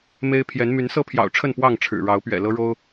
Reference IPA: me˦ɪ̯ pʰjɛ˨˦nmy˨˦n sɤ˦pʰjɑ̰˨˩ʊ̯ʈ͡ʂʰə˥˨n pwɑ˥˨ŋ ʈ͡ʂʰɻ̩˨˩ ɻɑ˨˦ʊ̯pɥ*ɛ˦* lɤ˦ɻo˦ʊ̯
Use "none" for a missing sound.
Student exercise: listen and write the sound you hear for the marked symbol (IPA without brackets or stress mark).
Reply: ɛ̰˨˩